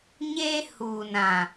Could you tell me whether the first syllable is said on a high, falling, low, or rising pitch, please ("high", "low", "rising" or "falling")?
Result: high